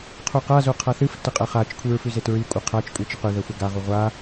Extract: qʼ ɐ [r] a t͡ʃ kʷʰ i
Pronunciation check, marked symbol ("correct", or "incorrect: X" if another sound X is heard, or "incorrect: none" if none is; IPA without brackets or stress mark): incorrect: χ